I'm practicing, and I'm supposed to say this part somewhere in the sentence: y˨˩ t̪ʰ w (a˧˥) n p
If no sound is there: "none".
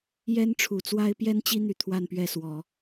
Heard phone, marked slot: a˥˧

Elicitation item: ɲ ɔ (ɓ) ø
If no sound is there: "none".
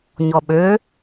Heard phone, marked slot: ɓ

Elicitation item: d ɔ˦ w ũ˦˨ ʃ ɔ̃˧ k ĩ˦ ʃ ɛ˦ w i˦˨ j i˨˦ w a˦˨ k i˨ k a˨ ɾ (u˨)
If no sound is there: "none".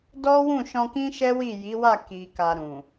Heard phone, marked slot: ũ˨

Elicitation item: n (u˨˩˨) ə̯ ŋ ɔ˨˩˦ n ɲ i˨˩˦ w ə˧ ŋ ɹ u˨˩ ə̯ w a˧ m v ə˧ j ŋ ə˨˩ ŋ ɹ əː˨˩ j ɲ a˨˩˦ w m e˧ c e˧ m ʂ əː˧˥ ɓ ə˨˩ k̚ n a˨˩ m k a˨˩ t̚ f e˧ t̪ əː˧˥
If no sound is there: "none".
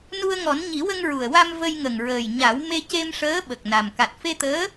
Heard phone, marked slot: u˧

